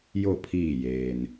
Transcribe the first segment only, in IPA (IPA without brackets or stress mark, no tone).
j